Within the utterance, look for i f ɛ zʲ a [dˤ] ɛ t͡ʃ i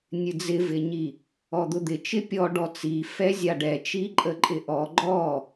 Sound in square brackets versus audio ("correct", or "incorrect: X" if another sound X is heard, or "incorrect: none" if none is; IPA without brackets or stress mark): incorrect: ɖ